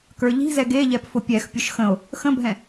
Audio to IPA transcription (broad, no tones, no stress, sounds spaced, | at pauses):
k ə˞ ʎ i̤ z ɛ ɡ e ʎ ɛ p f ʊ pʲ ɛ x pʲ ʊ ʃ x ə̃ o̯ | x ə̃ bʱ ɛ̃